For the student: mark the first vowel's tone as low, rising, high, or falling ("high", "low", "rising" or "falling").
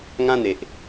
high